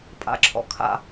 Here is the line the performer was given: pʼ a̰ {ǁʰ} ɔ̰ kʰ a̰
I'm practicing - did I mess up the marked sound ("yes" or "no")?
no